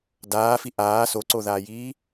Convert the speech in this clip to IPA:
daːfi ʔaː soǀoðaːjiː

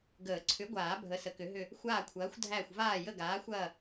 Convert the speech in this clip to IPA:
ɡəː˨˩˦ ǀʰʏ˨˥ɡʷaː˨˩˦ bʱə˨˥sə˨˩˦kʏ˨˥ɦʏ˦˨ | xʷaː˦˨kʷʰɐː˨˥xʷdʱæ˦˨xʷ vaː˦˨jə˦˨ɡaː˨˥xʷɐː˦˨

